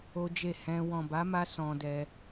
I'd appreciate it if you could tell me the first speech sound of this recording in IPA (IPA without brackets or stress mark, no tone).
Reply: o